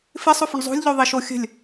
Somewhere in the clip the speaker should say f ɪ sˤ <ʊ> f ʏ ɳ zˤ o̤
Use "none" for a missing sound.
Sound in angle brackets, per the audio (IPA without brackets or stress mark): ʊ